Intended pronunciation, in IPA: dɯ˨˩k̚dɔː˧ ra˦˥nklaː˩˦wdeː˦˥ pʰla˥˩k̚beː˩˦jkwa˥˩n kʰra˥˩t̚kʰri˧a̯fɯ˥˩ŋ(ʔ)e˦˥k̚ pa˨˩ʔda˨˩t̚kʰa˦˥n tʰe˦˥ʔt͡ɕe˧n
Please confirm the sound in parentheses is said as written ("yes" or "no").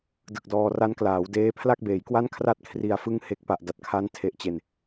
no